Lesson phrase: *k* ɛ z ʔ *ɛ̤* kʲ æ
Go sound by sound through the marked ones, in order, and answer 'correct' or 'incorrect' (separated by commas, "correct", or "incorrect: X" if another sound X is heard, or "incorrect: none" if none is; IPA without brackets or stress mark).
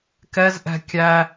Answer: correct, correct